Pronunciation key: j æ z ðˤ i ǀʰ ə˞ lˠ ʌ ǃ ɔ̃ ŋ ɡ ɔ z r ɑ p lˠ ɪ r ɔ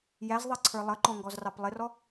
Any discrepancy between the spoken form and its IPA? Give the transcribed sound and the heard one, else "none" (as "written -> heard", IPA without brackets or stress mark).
none